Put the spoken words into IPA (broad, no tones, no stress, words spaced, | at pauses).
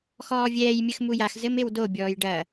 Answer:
xɔːvʲɛːj mʲɘxmujax zɘmewdo bʲɔːjɖɐ